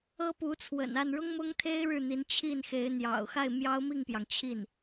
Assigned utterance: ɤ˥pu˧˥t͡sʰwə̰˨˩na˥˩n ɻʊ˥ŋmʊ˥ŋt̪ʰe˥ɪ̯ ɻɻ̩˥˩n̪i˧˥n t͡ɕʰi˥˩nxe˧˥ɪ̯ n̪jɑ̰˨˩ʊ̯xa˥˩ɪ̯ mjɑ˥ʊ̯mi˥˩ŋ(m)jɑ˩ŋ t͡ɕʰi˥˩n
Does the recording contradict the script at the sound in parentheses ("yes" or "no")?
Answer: yes